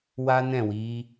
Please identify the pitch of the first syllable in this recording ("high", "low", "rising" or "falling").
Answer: high